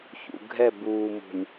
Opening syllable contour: low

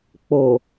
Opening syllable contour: low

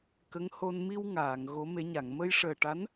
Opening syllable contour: rising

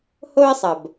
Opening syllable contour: high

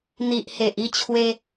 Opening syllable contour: low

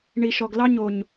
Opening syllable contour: low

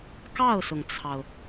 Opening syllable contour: falling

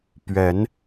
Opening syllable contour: rising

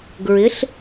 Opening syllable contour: rising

